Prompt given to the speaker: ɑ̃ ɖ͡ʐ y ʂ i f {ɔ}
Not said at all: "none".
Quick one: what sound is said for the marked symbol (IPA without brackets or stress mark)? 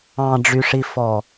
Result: ɔ